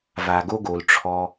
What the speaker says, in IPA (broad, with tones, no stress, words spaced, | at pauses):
va˩ɡo˨ɡo˩l ʈ͡ʂʰɔ˨